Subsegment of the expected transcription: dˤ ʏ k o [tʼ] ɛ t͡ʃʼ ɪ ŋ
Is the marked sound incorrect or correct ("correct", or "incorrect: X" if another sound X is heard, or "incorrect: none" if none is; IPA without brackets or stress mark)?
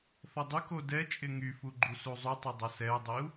incorrect: d